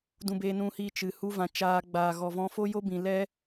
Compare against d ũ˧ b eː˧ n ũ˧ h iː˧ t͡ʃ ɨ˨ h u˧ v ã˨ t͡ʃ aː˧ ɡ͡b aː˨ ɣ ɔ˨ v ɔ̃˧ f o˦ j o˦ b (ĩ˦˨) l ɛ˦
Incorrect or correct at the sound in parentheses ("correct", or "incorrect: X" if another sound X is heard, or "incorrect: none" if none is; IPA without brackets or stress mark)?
incorrect: ĩ˨